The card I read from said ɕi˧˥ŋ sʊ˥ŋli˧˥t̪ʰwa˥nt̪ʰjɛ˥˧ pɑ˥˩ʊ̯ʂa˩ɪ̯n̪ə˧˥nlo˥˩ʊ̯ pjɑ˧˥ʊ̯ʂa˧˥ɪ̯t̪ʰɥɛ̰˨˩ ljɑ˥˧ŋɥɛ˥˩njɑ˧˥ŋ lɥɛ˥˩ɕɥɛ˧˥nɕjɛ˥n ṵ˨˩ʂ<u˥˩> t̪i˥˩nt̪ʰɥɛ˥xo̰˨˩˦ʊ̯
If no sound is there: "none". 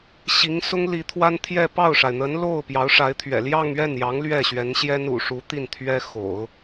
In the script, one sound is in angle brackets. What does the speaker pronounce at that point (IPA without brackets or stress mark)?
u˧˥